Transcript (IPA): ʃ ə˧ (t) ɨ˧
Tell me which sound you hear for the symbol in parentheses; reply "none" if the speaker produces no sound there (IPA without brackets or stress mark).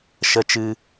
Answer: t͡ʃ